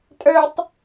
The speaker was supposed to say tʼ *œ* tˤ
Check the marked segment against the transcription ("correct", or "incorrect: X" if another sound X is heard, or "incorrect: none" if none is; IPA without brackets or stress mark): correct